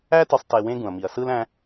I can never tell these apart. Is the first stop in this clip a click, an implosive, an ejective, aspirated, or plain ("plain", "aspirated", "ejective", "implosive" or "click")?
plain